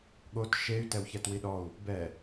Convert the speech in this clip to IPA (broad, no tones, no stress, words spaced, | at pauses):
ɠot ʃey̯ tɛwçɛtwiɗɔu̯ | bɛ